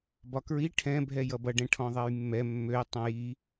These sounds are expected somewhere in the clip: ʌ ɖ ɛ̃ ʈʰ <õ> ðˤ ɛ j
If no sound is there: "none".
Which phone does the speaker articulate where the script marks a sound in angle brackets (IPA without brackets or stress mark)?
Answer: ɔ̃